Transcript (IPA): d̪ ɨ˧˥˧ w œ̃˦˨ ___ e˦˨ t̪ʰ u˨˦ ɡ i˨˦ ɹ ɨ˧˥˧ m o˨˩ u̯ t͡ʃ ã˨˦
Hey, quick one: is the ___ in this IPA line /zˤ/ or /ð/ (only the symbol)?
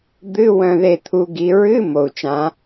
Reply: ð